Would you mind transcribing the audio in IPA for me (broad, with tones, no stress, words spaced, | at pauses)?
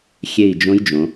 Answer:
xʲe˦˨i̯d͡ʒõ˦˥j d͡ʒõ˩˧